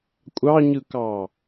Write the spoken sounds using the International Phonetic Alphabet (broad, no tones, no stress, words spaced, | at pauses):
kʷʼɑɲɯkɑ